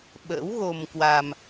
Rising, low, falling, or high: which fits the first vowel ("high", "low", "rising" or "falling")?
rising